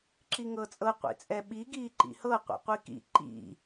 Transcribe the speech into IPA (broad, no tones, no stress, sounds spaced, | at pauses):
ǁ i ŋ ɤ t͡sʼ ɤ qʷ ḭ t͡sʼ ɛ ɓ i ɡ iː ǃ ḭ h ɤ qʷ ḭ qʷ i k ḭ ǃ ḭ